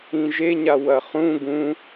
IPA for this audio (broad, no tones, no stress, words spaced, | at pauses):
ĩʒeɲa wɐχũ ɡũ